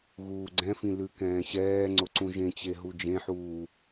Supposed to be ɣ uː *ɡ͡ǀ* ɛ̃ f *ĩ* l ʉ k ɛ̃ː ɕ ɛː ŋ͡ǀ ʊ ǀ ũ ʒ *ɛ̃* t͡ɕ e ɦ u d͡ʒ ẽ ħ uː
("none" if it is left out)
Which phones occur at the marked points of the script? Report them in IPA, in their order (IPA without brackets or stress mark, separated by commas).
ɡ͡ǀ, ĩ, ẽ